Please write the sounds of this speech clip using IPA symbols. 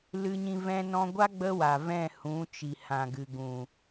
l ɨ˧ ɲ ĩ˧ v ɛ̃˧ n ɔ̃˧ ɡʷ a˦ ɡ͡b ə˦ w a˨ v ɛ̃˦˨ h ũ˨˦ t͡ʃ i˨ h ã˨ ɡ ɨ˨ ɡ ũ˨

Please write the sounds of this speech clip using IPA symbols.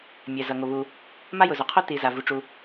mʲ ɛ˩ z ʌ˩ ŋ o˩ β u˩ | m a˥ j ʊ˩ z o˩ qʰ o˥ t i˩ z a˩ v u˩ ʈ͡ʂ u˩

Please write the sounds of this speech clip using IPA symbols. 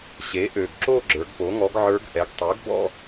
ɕ e˩˥ ʔ ø˨˩ ɡ ǁ o˥˧ ɡ͡ǁ ə˞˩˧ ɡ p o˩˥ ŋ ɔ˧˥ ɡ ʕ ə˞˧˥ ɡ ʔ ɛ˩˥ ɡ tˤ ø˩˥ ɡ b ɔ̰˥˧

